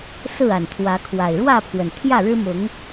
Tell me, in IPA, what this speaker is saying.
sɹ̩˥˨a˨˩nt̪ʰwä˨˦kʰwa˨˩ɪ̯ ɻwä˥˨pʰwə˩n t̪ʰjä˥˨ɻɻ̩˦mʊ˨˦ŋ

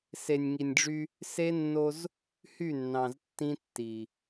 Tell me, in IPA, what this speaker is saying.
se˨nʲŋi˨nʲɖ͡ʐy˦ | se˦nːo˦z | hy˦˨nːɑ̃˨ztːĩ˦tːi˨

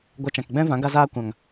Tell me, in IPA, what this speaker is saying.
ɡʷa˧t͡ʃã˨kɡ͡bɛ̃˦vã˨˦ ɡa˧zaː˧kʷã˨ŋ

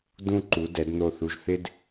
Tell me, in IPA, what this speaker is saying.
dũ˥ǃu˩˥ dɛ˩˥dn̪o˥˩θu˧ʒ θɪ˥d

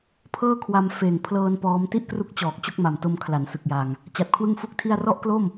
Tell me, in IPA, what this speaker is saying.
pʰɤː˥˩kʰwa˧m feː˨˩ŋpʰlɤː˧n pɔː˦˥m ti˥˩ʔkru˦˥k̚t͡ɕɔː˨˩k̚ t͡ɕo˥˩k̚ma˨˩mto˧m kʰla˩˦nsɯ˨˩k̚jaː˨˩ŋ | t͡ɕa˨˩t̚kʰwɯ˥˩ŋfu˥˩k̚tʰi˥˩a̯ rɔ˥˩ʔklo˥˩m

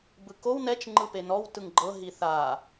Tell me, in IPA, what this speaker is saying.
bɯkow nɛt͡ʃ ŋ͡ǃɯpenɔw tɯŋɡ͡ǃɤ ɦiθa

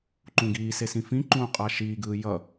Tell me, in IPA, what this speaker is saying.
ǃũɡiːse sĩfĩǃũː qʼaʃiːɡɯː jʌ

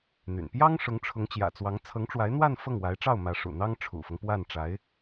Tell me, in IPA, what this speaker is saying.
n̪y̰˨˩n pjɑ˥ŋ ʂʊ˧˥ŋʈ͡ʂʰʊ˧˥ŋt͡ɕjä̰˨˩t͡swɑ˧˥ŋ t͡sʰɤ˧˥ŋʈ͡ʂwa˧˥ɪ̯n̪wa˥˧n fɤ˥˩ŋwa˧˥ɪ̯ʈ͡ʂɑ˥˩ʊ̯ mä˧˥ʂṵ˨˩n̪ɑ˥ŋ ʈ͡ʂʰṵ˨˩fɤ˦ŋ pwa˥˩nʈ͡ʂa˧˥ɪ̯

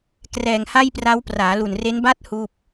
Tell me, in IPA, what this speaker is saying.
krɛː˨˩ŋha˥˩jpra˦˥w praː˩˦lu˨˩nre˦˥nba˥˩t̚ huː˥˩p̚

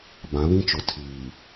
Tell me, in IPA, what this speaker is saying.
bã˨˦βĩ˦t͡ʃʊ˨ tʰiː˨

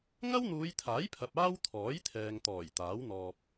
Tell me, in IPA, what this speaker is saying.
ŋɐ˥wn̪uː˨˧jt̪ʰaː˨˥jpʰɐ˨p̚ aː˥wt̪ʰɔː˨˥j t̪ʰɛː˨ŋt̪ɔː˨˩j t̪aː˨˥wn̪ɔː˧p̚

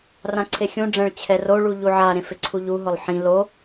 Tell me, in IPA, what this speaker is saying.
rãǀʰexʲũɖ͡ʐɛ̃ɭ t͡ɕʰɛroɭu ʎuʕaɾẽ fɪǀʰuʎuɦʊlˠ ħĩ lo

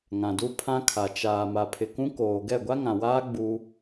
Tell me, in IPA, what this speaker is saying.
ŋã˨du˦pʰã˦kʰa˨ t͡ʃaː˨ ma˨pʰɪ˨kũ˦koː˨ ɡɛ˦˨ɡʷa˦ŋã˨waː˦ ɡ͡bu˦

